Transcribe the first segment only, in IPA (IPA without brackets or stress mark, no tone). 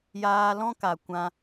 j